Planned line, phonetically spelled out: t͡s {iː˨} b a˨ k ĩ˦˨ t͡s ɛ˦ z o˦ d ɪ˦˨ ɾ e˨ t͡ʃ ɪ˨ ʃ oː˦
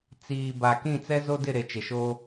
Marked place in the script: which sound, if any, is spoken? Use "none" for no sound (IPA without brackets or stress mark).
iː˨